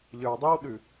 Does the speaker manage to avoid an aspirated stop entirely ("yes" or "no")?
yes